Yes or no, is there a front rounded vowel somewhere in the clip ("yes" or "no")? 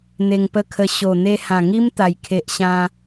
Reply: no